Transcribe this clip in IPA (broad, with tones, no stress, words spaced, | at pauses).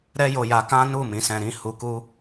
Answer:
ɾɛ˦jo˧ja˧ kã˦nu˦˨ mĩ˨˦sɛ̃˧ɾĩ˦ hu˧ku˦